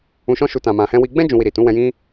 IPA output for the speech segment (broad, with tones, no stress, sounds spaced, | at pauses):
ũ˧ ʃ ɔ̃˦ ʃ u˧ t ã˧ m ã˧ h ɛ̃˦ w i˧ ɡ͡b ɛ̃˦ d͡ʒ ũ˧ w i˧ ɾ i˨ t ũ˨˦ w ɛ̃˧ j ĩ˦